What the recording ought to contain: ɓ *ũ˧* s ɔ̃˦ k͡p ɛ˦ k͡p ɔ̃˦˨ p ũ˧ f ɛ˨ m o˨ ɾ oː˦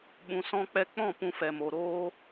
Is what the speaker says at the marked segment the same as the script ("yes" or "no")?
yes